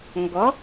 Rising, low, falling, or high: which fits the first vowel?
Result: rising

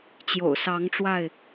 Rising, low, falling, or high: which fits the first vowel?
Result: low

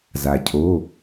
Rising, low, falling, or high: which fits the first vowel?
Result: low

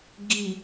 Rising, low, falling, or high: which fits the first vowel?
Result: low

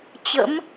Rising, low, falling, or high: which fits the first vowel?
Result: rising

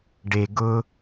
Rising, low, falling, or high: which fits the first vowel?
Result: low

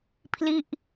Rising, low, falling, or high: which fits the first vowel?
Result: falling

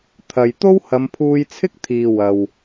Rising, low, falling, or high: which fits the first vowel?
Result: low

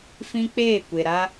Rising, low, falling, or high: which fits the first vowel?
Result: high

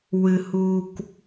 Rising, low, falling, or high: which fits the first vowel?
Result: low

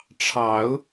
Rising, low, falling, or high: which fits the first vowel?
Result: rising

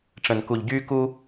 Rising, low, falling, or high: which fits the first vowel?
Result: low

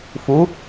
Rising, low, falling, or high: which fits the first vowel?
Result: rising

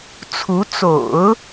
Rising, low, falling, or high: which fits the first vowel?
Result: rising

